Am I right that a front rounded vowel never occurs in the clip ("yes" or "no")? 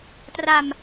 yes